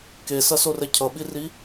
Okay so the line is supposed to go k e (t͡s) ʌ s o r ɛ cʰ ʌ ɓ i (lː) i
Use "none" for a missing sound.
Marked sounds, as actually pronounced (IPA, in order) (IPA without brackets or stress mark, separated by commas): s, r